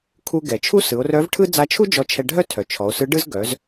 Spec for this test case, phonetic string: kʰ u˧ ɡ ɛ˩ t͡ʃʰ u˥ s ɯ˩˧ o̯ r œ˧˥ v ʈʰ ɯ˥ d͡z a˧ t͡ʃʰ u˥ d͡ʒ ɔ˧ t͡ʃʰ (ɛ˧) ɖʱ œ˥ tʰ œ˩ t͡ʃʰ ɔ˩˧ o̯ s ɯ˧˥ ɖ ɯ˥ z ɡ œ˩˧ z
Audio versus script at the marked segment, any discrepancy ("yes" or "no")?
no